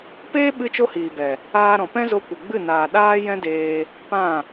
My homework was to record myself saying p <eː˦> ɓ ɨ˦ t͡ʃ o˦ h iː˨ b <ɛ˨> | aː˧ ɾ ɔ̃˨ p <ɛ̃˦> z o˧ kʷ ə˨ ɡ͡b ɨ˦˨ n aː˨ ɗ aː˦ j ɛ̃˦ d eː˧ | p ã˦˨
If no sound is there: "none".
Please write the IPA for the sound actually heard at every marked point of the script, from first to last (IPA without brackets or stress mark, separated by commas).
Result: eː˦, ɛ˨, ɛ̃˦